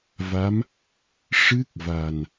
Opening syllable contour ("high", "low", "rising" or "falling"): rising